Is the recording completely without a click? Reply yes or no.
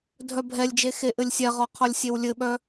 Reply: yes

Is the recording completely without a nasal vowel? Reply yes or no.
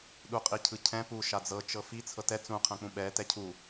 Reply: no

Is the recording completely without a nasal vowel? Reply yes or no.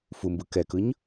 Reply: yes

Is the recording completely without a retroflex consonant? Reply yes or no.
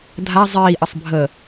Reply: yes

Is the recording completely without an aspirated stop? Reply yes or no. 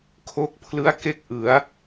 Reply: no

